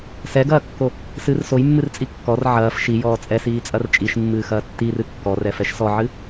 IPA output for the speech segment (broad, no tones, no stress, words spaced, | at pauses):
sɛɡɐːkːo | sɨr sojmːɨrt͡sʼi kːɔr ʕɐːf ʃijɔː t͡sʼɛsiːt͡sʼɐr t͡ʃʼiʃmːɨːxɐː tːirɨ kːɔrɛfɛʃ sɔʕɨ